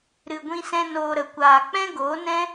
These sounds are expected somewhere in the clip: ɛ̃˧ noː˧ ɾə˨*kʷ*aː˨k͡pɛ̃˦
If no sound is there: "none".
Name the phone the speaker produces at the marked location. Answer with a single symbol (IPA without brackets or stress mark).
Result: kʷ